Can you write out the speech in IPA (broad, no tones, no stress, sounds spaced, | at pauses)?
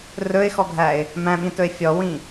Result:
r ɵ ɪ̯ x ɔ ɡʱ æ ɪ̯ | m æ̃ ɓ ĩ t ɵ ɪ̯ fʲ ɔ w ĩ